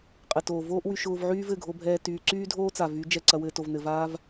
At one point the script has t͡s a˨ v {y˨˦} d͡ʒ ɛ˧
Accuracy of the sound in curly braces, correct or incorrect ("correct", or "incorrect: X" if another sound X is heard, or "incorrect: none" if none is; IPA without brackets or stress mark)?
correct